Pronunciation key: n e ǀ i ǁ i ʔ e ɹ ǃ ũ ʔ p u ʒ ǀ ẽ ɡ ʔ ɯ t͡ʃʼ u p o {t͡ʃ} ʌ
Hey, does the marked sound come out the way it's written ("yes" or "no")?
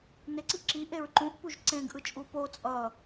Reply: no